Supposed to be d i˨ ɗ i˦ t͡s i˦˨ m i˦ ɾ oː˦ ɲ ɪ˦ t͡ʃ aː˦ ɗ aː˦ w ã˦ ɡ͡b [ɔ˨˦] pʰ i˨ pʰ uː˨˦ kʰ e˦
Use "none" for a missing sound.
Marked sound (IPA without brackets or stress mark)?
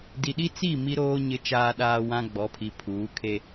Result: ɔ˨˦